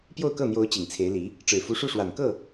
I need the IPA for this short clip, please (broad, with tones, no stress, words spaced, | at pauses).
pjo˥˧ʊ̯kɤ˥˩n̪jo˧˥ʊ̯ t͡ɕi˨˩ŋt͡sʰe˧˥ɪ̯li˧˥ | ʈ͡ʂɻ̩˨˩fu˧˥ʂu˥˩ʂwa˨˩n kɤ˥˩